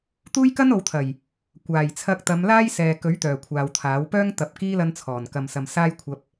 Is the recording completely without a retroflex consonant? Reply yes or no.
yes